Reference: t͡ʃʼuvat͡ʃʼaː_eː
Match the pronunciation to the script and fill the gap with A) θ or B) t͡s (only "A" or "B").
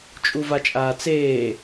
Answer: B